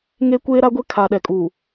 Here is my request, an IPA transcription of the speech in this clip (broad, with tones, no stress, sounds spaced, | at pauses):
ŋ e˦ kʷ eː˦ ɾ a˦ ɡʷ e˦ kʰ a˨ ɗ ɛ˨ kʼ u˨